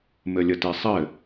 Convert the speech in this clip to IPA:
m ɘ lʲ ə t e sˤ ɘ

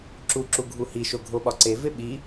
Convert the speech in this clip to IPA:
ǁ u ǁ u ɡʱ u h i ʃ o ɡʱ o ɓ ɒ ǀ e v e ɓ i

